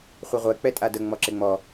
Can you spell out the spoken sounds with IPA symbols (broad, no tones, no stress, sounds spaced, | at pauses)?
χʷ ɪ ʁʷ ɛ k͡p ɛ tʼ a d ə ŋ͡m ɔ ǁ ɪ ŋ͡m ɔ